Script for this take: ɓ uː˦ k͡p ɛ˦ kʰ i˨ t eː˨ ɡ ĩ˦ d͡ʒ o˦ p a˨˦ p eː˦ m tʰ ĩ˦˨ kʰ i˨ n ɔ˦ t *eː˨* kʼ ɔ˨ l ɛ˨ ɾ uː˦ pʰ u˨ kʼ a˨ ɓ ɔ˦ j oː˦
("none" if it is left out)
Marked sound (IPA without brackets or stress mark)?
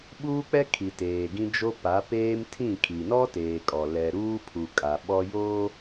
eː˨